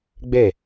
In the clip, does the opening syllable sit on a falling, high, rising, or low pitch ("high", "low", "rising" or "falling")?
falling